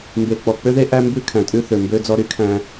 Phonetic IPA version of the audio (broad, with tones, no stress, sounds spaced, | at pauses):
m b e˨ k͡p ɔ˨ k͡p ø˦ ð e˦ ʔ æ˦ m b ʉ˦ kʰ æ̃˨ tʼ ʉ˦ θ ø˨ m b ø˦ d͡z ɔ˦ ɾ y˦ kʰ æ̃˦